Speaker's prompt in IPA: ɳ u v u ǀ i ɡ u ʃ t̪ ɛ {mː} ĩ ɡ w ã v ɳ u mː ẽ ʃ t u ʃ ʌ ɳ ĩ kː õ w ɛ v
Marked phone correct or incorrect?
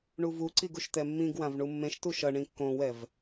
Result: correct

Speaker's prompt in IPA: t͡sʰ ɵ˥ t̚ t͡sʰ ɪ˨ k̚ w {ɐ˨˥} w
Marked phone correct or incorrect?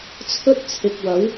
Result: correct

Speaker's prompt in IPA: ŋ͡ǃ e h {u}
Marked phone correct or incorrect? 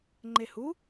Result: correct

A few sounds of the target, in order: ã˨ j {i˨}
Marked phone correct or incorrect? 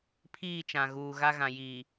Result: incorrect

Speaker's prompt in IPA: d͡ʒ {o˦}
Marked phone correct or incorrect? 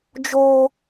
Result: incorrect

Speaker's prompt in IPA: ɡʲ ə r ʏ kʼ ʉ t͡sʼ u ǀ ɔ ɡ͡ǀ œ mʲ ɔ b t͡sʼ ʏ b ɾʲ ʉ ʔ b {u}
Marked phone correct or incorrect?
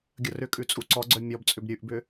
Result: incorrect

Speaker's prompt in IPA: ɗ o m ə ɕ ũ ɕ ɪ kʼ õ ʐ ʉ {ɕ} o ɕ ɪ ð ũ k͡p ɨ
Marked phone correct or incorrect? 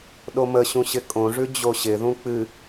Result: incorrect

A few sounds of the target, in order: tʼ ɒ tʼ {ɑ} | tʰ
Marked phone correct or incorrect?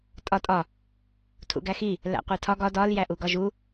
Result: incorrect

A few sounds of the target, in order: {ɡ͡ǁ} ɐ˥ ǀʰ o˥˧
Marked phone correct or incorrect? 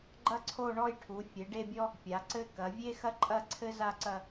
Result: incorrect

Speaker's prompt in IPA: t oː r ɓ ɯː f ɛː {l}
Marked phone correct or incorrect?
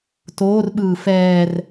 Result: incorrect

